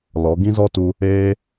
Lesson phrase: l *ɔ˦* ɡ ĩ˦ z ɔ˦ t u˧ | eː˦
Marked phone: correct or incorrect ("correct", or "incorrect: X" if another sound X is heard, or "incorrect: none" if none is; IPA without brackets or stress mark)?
incorrect: ɔ˨˦